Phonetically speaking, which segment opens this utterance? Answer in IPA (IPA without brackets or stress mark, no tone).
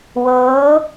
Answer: w